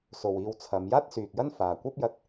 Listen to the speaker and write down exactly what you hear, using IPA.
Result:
so˨wiː˧wt͡sʰɐ˨˧m jaː˥t̚syː˨k̚jɐ˥n faː˨ kʷɐ˥p̚jɐ˧t̚

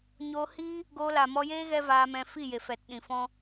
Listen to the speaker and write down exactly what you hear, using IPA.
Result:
ɲo˧hi˦ | ɡo˧la˨ mɔ˧jeː˦ ɣɛ˦vaː˧mɛ̃˧ fi˦˨je˨ fɛ˨tɗĩ˨fɔ̃˦

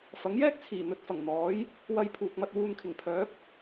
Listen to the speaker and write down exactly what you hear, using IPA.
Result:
fɐ˨˥ŋjɛː˥k̚t͡sʰiː˨˩ n̪ɵ˧t̚fɐ˨˩ŋn̪ɔː˨˥j | wɐ˧j pʰuː˨k̚mɐ˧t̚ wuː˧nkʰɪ˨˩ŋ pʰœː˨˥p̚

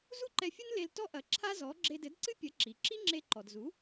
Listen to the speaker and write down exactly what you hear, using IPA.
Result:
zu˥ǃɛ˧fʲu˥n le˧l tɔ˥ʔɐ˩˥ ǁʰa˥zɔ˩˥ ɡ͡ǁe˧dɘ˩˥dǀɨ˥pʲɐ˩˥ ǁi˩ ǁi˥ŋ͡ǁe˧ǃɔ˩d zu˩˥

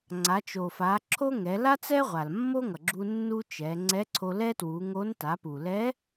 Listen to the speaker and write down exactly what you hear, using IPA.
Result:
ŋ͡ǀa˩˧t͡ʃo˩fa˩˧ǁʰo˥ ŋɛ˩˧ la˥t͡sɛ˥ʁʷa˩l mːo˥ŋʌ˩ɡ͡ǁu˧ nːu˥t͡ʃɛ˩˧ ŋ͡ǀɛ˧˥ǀʰo˧ lɛ˥twu˩˧ŋo˧˥n ta˩˧pu˩lɛ˧˥

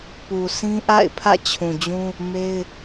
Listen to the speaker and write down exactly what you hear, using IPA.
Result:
pu˨sʰĩ˦ʔa̰˦˨ɪ̯pʰä̰˦˨ t͡ɕʰũ˨d͡ʑũ˦ | me˦ɪ̯

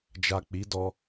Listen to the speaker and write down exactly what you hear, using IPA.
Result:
d͡ʒa˨ k͡pi˨˦dɔ˧

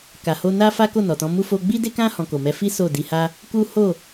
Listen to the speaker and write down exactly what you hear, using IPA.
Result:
ka˨ho˧na˦ fa˦ko˦˨nɔ˨tɔ̃˨˦ mu˦fo˦ ɡ͡bi˦de˦kã˦ hɔ̃˧ko˨mɛ˧ fi˦ so˦˨di˧ha˦ | ku˦ho˦˨

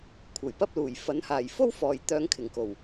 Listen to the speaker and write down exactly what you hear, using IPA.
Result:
kʷʰɐ˨˩jpɐ˥p̚luː˨˩j fɐ˨˥nhaː˨˩j fo˥wfɔː˨˩j t̪œː˨˧ŋkʰɪ˨˩ŋko˨˩w

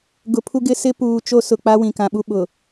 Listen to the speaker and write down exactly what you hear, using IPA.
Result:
ɡʊ˨pʰu˦ɡɪ˦sɪ˦ puː˨ t͡ʃo˦sʊ˨k͡pa˦ wĩ˨kã˨ɓu˦ ɓʊ˨

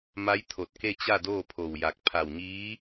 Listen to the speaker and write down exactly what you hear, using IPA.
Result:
ma˧˥j t̪ʰo˧˩t̚ke˥˨ t͡ɕa˥˨doː˥˨pʰo˧˩wja˧˩k̚ pʰa˧˩wɲiː˧˥

